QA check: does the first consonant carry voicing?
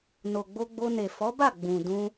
yes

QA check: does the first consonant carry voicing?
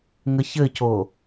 yes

